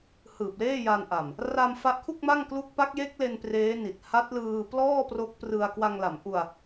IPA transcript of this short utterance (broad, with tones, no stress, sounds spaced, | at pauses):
h ɯː˨˩ p̚ l eː˥˩ j a˧ n ʔ a˨˩ m | r a˧ m f a˦˥ ʔ kʰ u˥˩ k̚ m a˥˩ ŋ k l u˦˥ k̚ p a˦˥ k̚ j e˦˥ k̚ l e˧ n p r eː˦˥ n i˨˩ t̚ h a˦˥ t̚ l ɯː˧ p l ɔː˥˩ p r o˦˥ k̚ p r ɯ˧ a̯ k w a˧ ŋ l a˩˦ m ʔ u˧ a̯